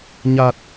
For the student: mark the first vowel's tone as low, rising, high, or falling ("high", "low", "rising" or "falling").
low